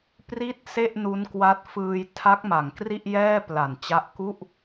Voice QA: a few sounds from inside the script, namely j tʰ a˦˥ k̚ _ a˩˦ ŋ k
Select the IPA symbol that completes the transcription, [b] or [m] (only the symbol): m